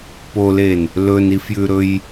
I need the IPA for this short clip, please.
p o l e n | l ɵ n i f j ʉ ɾ ɵ j

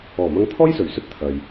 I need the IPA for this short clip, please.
ɔː˨˩ m ɐ˧ ŋ t̪ʰ ɔː˥ j s ɵ˨˩ ɥ s ɵ˥ t̚ t̪ʰ ɐ˨ j

